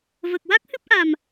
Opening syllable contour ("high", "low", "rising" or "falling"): low